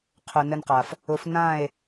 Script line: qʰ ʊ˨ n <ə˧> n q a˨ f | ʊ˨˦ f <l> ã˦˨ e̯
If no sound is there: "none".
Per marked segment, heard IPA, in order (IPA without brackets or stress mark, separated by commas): ə˧, n